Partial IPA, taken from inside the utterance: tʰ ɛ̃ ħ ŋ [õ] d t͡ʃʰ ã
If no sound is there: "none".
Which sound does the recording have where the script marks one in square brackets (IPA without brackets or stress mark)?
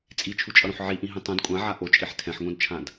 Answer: õ